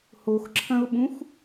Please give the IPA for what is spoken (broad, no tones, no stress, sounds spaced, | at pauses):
h o x ǁʰ ɐ̃ ʊ̯ ɓ ũ x